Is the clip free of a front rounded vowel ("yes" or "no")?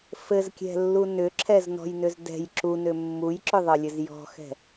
no